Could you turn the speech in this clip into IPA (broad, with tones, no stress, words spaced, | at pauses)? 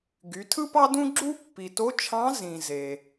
ɡy˩˧ tʰɯ˥pɑ˥dũ˥ɡ͡ǁu˥ pːi˩to˧˥t͡ʃʰɑ̃˧˥ zĩ˩ ze˩